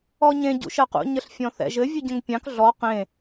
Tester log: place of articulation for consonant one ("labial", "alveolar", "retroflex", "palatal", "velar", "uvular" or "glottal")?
palatal